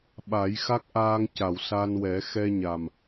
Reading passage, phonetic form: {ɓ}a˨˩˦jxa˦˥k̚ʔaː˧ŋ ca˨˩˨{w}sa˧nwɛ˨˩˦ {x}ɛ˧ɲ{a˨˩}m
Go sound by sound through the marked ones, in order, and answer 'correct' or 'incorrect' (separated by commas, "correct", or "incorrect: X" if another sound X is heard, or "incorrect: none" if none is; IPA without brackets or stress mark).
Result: correct, correct, correct, correct